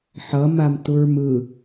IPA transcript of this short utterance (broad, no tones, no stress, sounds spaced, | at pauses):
ħ ʌ m a m t u ɹ m ɯ